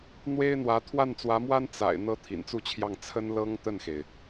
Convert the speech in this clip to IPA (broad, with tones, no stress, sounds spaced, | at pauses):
n̪ w e˥ ɪ̯ n̪ w ä˧˥ t̪ʰ w a˥˩ n t͡s w ä˧˥ m w a˥ n t͡s a̰˨˩ ɪ̯ n̪ ɤ˥ t̪ʰ ḭ˨˩ n t͡s u˥˧ t͡ɕʰ j ɑ˥˩ ŋ t͡sʰ ə˥ n l ɤ˥ ŋ t̪ ə˥˩ n x e˩ ɪ̯